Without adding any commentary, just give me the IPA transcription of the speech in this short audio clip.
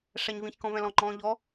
ʂ æ ɲ v ĩ ç k ɔ̃ v ɛ̃ l ɔ̃ ŋ͡ǃ ɔ̃ː ʎ ɔ

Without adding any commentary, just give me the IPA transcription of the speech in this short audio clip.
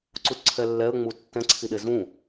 ǀ u t ǀʰ ɛ lː ɛ ə̯ ŋ͡m u tː ɛ̃ ǀʰ i ɗ e z ũ

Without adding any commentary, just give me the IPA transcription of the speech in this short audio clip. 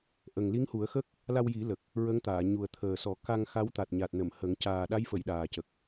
ʔ ə˨˩ ŋ l i˧˥ ŋ h u˨˩˦ ə̯ x ə˦˥ k̚ | l a˧ w j i˨˩˦ l ə˨˩ k̚ | ɹ ə˧˥ ŋ t̪ aː˨˩˨ ɲ u˨˩ ə̯ t̪ʰ əː˨˩ s ɔ˨˩˦ k a˧ ŋ x a˧˥ w t̪ a˨˩ t̚ ɲ a˨˩ t̚ n ə˨˩˨ m h ə˨˩˦ ŋ c aː˨˩ ɗ a˧˥ j f ə˨˩˨ j ɗ aː˨˩ c ə˨˩ k̚

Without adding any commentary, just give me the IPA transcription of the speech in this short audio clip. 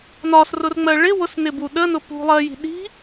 n ɒ s r ʊ r ŋ͡m ɜ ɭ ɪ w ʊ s n ɪ b u ɗ ə n ʊ p ṳ lˠ ɜ j i̤ ɗ i̤

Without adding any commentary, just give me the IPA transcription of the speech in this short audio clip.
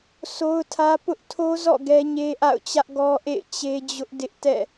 s o˦ ʊ̯ tʰ ä˦ p ʊ˦ ʔ tʰ o˦ z ɔ̰˦˨ ɡ ɛ˦ ɲ e˦ ʔ a̰˦˨ ʊ̯ t͡ɕ ä˦ ʔ ɡ ɔ˦ ʔ ḛ˦˨ ɪ̯ t͡ɕ e˦ d͡ʑ ʊ˦ ʔ d ɪ˦ ʔ t ɛ̰˦˨

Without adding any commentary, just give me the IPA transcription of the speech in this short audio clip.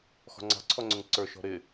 x ɔ̤ ŋ͡ǀ ɑ̤ ǀʰ ɔ ŋ͡ǀ ʊ ŋ ǀ ə˞ ʃ ɔ̤ ɾ ɪ

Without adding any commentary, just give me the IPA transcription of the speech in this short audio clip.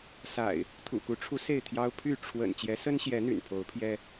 s a̰˨˩ ɪ̯ | t̪ʰ ṵ˨˩ k u˨˦ ʈ͡ʂʰ u˨˦ s e˥˨ ɪ̯ t̪ʰ j ɑ˦ ʊ̯ pʰ y˥˨ ʈ͡ʂʰ w ə̰˨˩ n t͡ɕ j ɛ˨˦ s ə˦ n ɕ j ɛ˨˦ n̪ y̰˨˩ n pʰ o˨˦ ʊ̯ pʰ j ɛ˦

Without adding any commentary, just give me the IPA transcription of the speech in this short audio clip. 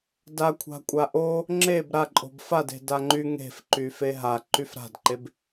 d a kʷʰ a̤ kʷʼ a ʔ o | ŋ͡ǁ e b ɾ a ǃʼ o̤ b f a d e̤ d a ŋ͡ǃ y ŋ e̤ f ǃ y f e ɦ a ǃ y f ɾ a̤ d ǃ e b

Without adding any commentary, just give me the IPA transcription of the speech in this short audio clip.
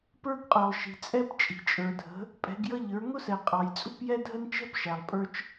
p ə˞˥ ɡ qʼ ə˞˨ lˠ ʃ i̤˨ t͡sʼ ɛ˥ p t͡ʃʼ i̤˨ t͡ʃʼ ə˞˨ dʱ ə̤˨˦ | pʼ ɛ̤˨˦ ɡ j ʌ˥ ʎ ə˞˨˦ ŋ ʊ˥ s ɛ˨ qʼ ɑ˨ j t͡sʼ ṳ˥ p j ɛ˥ dʱ ə˥ n t͡ʃ ɛ̤˥ p ʃ æ˨ lˠ pʼ ə˞˥ t͡ʃ

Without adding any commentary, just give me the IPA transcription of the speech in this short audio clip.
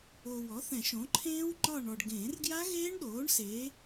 o˨ w ɔ˩˥ θ ɛ̃˨˩˦ ʃ õ˩˥ ǃʰ ẽː˦˥ w ŋ͡ǃ ɒ˦˨ ɳ ɔ˨ ɖ ɡ ẽː˨˩˦ r ɡ j a˦˥ ɣ eː˦˥ ɳ ɗ oː˩˥ ɳ s e˩˥

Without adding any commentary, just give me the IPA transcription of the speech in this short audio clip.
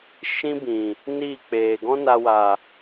ʃ ĩ˦ b ĩ˨ | n iː˦˨ k͡p eː˨ ɡ ɔ̃˦ n a˧ w a˨

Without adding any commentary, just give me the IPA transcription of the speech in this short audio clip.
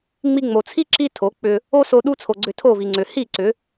ŋ͡m i˧ ŋ͡m o˨ t͡sʰ i˦ ǁ i˦ tʰ o˨˦ k͡p ʏ˧ | o˦ s o˧ ɗ u˦ t͡sʰ o˨ ɡ͡ǀ ʏ˧ tʰ o˦˨ v i˨ ŋ͡ǀ ʏ˨ h i˦˨ ǀ ʏ˨˦

